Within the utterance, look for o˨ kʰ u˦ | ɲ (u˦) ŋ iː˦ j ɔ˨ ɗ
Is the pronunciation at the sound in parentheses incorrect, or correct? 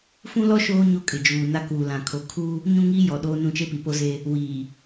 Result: incorrect